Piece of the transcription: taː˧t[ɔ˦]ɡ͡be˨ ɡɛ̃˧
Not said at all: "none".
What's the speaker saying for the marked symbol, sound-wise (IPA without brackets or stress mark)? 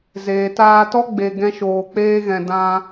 ɔ˦